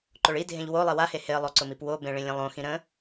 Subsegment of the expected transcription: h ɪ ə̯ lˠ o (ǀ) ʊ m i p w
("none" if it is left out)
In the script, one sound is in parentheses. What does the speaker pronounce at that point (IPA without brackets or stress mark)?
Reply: ǀ